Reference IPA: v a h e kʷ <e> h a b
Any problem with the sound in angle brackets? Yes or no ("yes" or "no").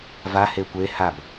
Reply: no